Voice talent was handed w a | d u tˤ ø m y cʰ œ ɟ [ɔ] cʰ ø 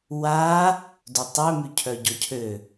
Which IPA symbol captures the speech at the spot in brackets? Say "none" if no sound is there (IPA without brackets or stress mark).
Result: ɔ